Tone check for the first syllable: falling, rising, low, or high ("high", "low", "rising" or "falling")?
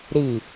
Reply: low